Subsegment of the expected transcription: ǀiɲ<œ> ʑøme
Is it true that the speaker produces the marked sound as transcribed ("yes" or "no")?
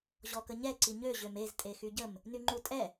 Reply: no